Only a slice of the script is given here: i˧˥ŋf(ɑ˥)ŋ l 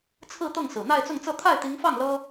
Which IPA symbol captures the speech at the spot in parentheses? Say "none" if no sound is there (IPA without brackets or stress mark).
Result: ɑ˥˩